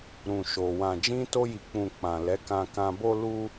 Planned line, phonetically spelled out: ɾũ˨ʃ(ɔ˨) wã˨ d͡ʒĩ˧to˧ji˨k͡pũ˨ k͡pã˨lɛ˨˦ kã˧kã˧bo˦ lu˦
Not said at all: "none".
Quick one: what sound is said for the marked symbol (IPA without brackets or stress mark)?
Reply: o˨